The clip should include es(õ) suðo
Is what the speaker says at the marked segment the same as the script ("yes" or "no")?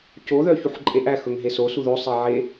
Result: no